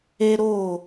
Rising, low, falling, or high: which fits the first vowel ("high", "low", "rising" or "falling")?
high